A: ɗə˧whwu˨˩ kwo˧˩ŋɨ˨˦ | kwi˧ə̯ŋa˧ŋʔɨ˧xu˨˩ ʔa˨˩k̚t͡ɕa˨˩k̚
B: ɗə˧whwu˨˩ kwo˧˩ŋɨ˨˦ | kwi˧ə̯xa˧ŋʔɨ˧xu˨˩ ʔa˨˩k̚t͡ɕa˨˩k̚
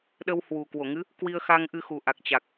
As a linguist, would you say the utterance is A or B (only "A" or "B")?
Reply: B